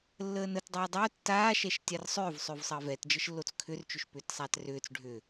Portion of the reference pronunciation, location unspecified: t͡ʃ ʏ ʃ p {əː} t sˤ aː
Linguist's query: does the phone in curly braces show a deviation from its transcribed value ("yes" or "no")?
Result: yes